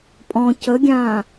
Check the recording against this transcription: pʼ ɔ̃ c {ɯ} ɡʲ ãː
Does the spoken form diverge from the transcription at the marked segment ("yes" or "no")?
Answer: yes